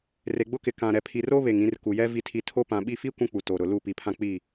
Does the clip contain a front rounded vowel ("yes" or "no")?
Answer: no